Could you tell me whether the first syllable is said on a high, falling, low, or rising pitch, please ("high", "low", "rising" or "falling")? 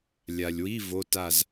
low